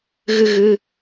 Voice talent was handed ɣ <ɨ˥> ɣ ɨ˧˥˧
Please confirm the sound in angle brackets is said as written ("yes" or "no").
yes